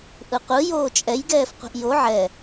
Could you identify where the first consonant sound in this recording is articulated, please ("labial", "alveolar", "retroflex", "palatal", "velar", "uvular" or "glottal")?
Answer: glottal